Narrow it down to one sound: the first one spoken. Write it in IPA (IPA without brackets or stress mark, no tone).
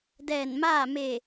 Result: d